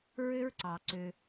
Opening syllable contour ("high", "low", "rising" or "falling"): high